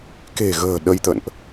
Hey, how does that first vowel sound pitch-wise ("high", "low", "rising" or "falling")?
low